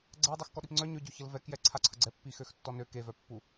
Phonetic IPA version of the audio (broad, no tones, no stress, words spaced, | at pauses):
ɡ͡ǀɛ dˤexkɔɗipŋ͡ǀœ ɲøɟoçəl vɛkjɛ ǀʰaǀʰəɡ͡ǀɛ pːixøxtːɔnø kevœpːu